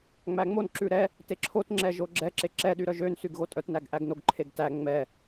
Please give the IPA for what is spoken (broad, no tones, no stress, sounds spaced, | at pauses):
ŋ͡m æ ŋ͡m o n ǁ ʉ ɾ ɛ | t e ǁʰ o t ŋ͡ǁ ɛ ʒ o ɡ͡ǁ ɛ ǁ e ǁ ɛ ɗ y ɾ œ ʒ ø n s y ɡ ɣ o tʼ œ t n æ ɡ ʔ æ ɡ n o ɡ ǃʰ e ɡ t æ ŋ͡m ɛ